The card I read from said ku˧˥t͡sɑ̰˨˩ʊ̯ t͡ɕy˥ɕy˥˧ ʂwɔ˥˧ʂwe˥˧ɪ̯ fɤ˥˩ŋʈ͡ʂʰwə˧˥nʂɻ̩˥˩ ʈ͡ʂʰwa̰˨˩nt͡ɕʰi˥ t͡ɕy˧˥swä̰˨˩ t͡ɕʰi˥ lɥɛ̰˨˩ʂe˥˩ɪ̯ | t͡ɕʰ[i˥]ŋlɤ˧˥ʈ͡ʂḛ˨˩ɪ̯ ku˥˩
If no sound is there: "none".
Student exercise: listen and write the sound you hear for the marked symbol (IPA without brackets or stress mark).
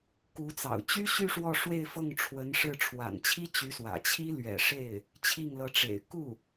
i˥˩